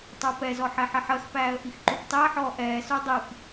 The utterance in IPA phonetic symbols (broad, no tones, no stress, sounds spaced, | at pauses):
tˤ o p ɛ z ɔ ħ ɛ ħ ɛ ħ ɜ x p æː ə̯ ʔ i x ǃ u p tˤ i ə̯ ħ ɔː ʔ ɛː s ʉ dˤ i p